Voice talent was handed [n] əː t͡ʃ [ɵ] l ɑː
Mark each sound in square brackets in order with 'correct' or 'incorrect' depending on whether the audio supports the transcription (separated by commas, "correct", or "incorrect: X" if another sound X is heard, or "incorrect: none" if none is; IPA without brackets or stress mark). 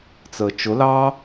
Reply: incorrect: t͡s, incorrect: ʊ